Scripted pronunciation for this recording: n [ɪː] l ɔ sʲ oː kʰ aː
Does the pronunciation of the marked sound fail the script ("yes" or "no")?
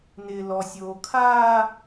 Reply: no